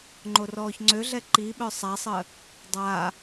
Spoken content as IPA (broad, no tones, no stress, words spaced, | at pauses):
ŋ͡ǃorɔːçŋ͡ǀøɮɛ ǃiɓœ sˤasˤə | dˤa